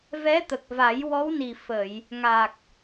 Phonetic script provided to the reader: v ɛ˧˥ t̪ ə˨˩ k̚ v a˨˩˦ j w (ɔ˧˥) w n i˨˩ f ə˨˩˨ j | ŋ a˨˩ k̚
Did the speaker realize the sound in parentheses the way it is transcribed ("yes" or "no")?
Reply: yes